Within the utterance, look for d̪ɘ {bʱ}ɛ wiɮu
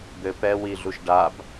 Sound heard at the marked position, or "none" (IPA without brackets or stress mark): p